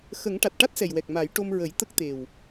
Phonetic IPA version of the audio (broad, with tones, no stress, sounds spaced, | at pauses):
x ə˨˩˦ ŋ ʈ a˨˩ t̚ ʈ a˦˥ t̚ s ɛ˨˩ j w ɛ˨˩ k̚ m a˨˩˦ j ʈ o˧ m ɹ ə˨˩˦ j t̪ ə˦˥ k̚ t̪ e˨˩ w